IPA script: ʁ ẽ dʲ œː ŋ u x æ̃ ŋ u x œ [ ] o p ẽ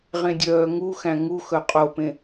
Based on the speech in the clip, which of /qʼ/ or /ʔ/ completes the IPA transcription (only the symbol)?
qʼ